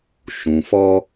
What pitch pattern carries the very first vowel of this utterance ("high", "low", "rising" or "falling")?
low